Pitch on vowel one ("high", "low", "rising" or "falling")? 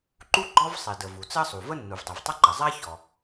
high